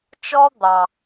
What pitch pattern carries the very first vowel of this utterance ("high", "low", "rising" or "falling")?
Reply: high